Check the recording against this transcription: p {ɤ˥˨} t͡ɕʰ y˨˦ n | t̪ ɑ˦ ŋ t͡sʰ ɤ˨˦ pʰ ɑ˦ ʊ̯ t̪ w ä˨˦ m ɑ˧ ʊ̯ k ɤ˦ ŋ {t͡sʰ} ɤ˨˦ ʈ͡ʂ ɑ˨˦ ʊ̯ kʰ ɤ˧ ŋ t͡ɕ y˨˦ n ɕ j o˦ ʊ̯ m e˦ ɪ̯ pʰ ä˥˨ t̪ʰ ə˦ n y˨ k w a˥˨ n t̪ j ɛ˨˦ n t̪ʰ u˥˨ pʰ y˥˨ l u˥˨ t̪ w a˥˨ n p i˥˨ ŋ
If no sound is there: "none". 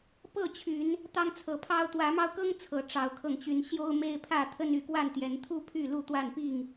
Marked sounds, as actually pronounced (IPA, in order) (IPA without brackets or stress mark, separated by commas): ɤ˥˨, t͡sʰ